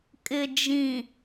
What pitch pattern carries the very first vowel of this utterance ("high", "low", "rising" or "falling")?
low